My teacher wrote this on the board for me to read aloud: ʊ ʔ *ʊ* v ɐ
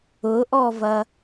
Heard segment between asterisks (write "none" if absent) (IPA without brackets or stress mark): ɔ